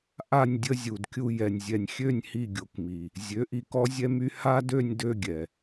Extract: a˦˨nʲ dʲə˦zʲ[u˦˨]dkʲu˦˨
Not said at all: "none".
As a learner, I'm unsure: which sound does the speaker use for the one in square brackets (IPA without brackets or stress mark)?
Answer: u˨